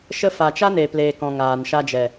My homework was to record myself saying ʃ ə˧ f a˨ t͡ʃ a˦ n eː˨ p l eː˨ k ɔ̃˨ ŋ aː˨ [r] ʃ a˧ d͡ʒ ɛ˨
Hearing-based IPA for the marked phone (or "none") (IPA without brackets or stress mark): n